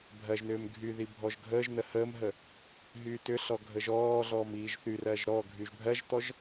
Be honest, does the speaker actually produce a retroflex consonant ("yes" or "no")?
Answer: no